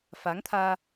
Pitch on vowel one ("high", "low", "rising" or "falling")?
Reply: rising